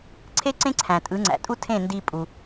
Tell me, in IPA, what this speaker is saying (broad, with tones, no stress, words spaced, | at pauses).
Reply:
ǀʰe˥ǀẽ˥ǀʰæ̃˩ tʼɯ˩˥ŋ͡ǀæ̰˩tʼu˥ tʰẽ˥˩ndi˧ pʼu˩